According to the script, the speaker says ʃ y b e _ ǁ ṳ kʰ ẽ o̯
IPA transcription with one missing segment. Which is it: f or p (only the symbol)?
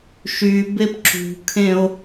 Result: p